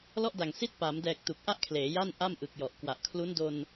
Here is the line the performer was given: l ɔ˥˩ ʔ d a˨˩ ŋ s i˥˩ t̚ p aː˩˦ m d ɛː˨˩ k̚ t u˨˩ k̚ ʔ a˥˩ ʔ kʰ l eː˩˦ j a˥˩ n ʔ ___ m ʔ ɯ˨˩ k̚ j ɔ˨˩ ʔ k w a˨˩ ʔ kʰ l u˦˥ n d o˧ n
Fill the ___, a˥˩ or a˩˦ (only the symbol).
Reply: a˥˩